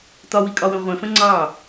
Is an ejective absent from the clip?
no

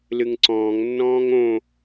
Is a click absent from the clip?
no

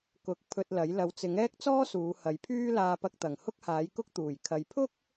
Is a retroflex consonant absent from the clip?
yes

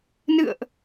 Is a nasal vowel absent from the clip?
yes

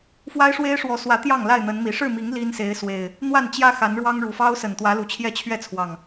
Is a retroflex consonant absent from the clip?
no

